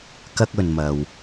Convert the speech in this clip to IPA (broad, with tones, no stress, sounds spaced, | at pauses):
k ɐ˧ k̚ ɵ˨ n m ɐ˨ w